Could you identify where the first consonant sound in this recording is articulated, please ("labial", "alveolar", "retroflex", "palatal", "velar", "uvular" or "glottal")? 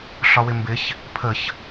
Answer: alveolar